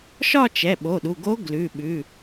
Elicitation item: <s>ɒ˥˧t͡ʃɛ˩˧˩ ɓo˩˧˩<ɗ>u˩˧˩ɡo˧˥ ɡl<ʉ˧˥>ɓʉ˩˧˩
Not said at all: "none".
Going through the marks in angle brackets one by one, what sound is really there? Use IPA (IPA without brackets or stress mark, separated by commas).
ʃ, ɗ, ʉ˩˧˩